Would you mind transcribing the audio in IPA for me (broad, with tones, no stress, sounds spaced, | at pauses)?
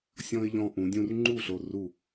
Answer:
sʲ ɔ̃˧ ɪ̯ ʎ ɔ̃˧ ʔ ũ˩˧ dʲ ũ˧ r ŋ͡ǃ u˥˨ ɬ o˧˩ r u˧˩